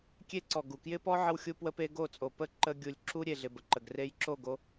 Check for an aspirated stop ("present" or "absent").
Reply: absent